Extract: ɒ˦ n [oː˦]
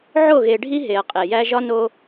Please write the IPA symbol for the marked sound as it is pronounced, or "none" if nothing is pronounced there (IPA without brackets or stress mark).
o˦